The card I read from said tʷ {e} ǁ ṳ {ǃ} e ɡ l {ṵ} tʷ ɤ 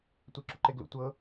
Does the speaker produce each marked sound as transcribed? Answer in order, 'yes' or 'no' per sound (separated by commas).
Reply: yes, yes, yes